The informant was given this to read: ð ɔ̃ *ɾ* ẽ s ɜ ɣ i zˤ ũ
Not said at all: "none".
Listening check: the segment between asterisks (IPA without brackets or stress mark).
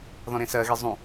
ɾ